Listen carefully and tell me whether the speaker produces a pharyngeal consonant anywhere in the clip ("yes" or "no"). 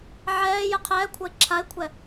yes